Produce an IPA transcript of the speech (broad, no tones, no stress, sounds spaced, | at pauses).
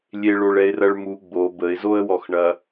lʲ e ɭ o ɭ ɛ ɪ̯ r ɐ ɭ m u ɡ͡b o b ə ɪ̯ z o ə̯ w ɔ x ɳ ɐ